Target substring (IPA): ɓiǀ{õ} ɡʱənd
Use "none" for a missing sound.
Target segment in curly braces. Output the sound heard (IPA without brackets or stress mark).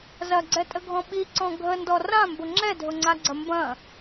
ɔ̃